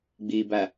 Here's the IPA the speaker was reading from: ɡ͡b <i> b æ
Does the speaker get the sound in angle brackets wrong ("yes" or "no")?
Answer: no